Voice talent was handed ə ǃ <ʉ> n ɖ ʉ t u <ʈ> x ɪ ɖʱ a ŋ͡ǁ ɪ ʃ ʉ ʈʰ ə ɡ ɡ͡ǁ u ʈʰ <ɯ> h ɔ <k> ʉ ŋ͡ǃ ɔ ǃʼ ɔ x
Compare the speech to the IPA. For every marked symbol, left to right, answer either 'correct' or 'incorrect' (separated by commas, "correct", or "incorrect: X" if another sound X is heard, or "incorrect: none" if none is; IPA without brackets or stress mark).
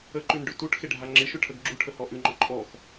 correct, correct, incorrect: ə, incorrect: ʔ